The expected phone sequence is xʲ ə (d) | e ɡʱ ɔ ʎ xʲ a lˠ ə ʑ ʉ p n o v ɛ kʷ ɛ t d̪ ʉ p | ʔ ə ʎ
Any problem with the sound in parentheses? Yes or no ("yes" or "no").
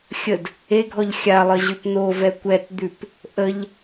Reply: no